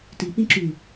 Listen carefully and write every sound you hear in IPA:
ti pĩǁy

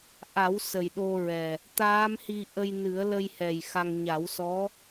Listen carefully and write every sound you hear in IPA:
ʔa˨˩˦w sə˨˩jɗo˧ɹɛ˨˩ | t̪aː˧˥mhi˧ ʔə˧jnɨ˨˩˦ə̯lə˧jhɛ˨˩j xa˧ŋ ɲa˨˩˦wsɔ˧˥

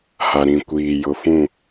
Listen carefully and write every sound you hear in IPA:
ha˨ɾĩ˨kʷiː˨ jʊ˨fũ˦˨

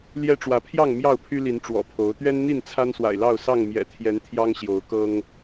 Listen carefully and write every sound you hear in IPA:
ljɛ˦ʈ͡ʂwä˨˦ pʰjɑ˥˨ŋ mjɑ˥˨ʊ̯pʰy˦li˨˦n ʈ͡ʂwɔ̰˨˩pʰo˨˦ʊ̯ t̪ɥɛ˦nn̪i˥˨n t͡sʰa˦nswa̰˨˩ɪ̯lɑ˥˨ʊ̯ sɑ˥˨ŋ mjɛ̰˨˩t̪ʰjɛ˨˦n t̪ʰjɑ˦ŋɕjo˨˦ʊ̯kɤ˦ŋ

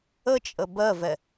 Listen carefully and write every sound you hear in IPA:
ət͡ʃʼə bɜvɛ

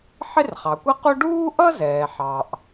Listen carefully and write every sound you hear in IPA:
ħɪ˥rχɑ˩kʷʌ˥qu˥ ɖuː˥ʔʌ˥zɛː˩ ħɑ˩ʔ

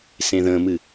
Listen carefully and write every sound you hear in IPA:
sẽðə̃mɨ

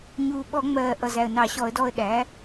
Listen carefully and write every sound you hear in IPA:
ɲuː˨˩ ɓɔ˧˩˧ŋ͡mɜː˨˩ ʔʌ˨˩zæ˨˩ə̯nɑ˧˩˧ ɕɔ˧˩˧ə̯dɔː˧ə̯ɗæː˩˥

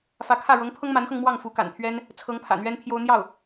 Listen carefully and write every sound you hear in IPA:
fä˧˥kʰä˥˩ ɻɤ˧˥ŋpʰɤ˥ŋma˧˥nxɤ˧ŋ mwɑ˥˩ŋfu˧˥ka̰˨˩nt̪ʰɥɛ˥n | t͡sʰɤ˧˥ŋpʰä̰˨˩ n̪ɥɛ˥npʰjo˥ʊ̯ n̪jɑ˥˩ʊ̯

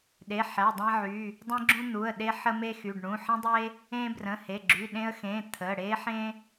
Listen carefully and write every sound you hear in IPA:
ɗe˩˧˩ħæ˩˧˩dˤæ̃˦ʕy˩˧˩ | dˤẽ˦ɡ͡ǁũ˦ n̪u˩˧˩ə̯ɗe˦ ħə˦ me˦xy˩˧˩ɖɳũ˩˧˩ ħə̃˦ dˤe˦ | ẽ˦ brə̃˩˧˩he˩˧˩ɡ͡ǁy˩˧˩ɗẽ˦ə̯ xẽ˩˧˩ t̪ʰə˩˧˩ ɽe˦ħẽ˦

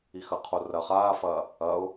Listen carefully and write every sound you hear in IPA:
ixɐqʰo rɐ χaːfɐː | ɐʊ̯

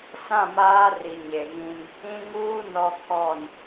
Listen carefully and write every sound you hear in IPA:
sã˦˨maː˦ ri˨ɲe˨ɣĩ˦n | ĩ˦ŋ uː˦ nɔ˦kʰɔ˦˨n

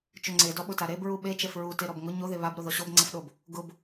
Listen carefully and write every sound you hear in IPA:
t͡ʃʊŋ͡ǀe dɔɓʊtaɾeb ɹuɓe t͡ʃɛfɹu teɾɔbŋʊ ɲo ðeβab ɾoðɔɕob ŋ͡ǀɛfɗob | ɡʊb

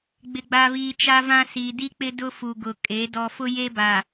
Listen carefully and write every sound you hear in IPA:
ɡ͡bɪ˨ɡ͡ba˨βiː˨ t͡ʃa˦vã˦ siː˨di˦k͡pɪ˦ dʊ˦fu˨ ɡʊ˨kʼe˨˦ dɔ˨fʊ˦je˦ba˨

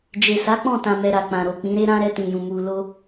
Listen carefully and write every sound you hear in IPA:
d͡ʒe˨sa˨˦ k͡pɔ̃˦˨tã˨mɛ˨ ɾa˨k͡pã˨ ɾo˨k͡pĩ˨˦ɾe˦ ɾã˧ ɾɛ˧tĩ˨jũ˨ mu˨lo˧

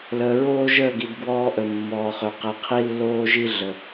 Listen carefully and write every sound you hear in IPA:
ləː˨ɹoː˦ʒəː˦˨ɡi˨d ɡwɔː˦ʔə˨mːɔː˨χø˨ qe˨qʰi˦lːoː˦ʒi˦ ɮə˨

